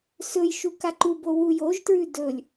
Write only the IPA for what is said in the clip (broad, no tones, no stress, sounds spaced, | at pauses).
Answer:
s ɵ j ʃ u k a ǃ u b o w u j o ʒ t ɹ ʉ d ɵ lʲ